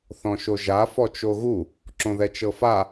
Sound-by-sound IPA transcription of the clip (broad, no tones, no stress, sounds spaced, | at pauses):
θ ɔ̃ ʃ o ʒ a f ɔ t͡ʃ o ɣ u | ǁ õ ð ɛ t͡ʃ ɤ f a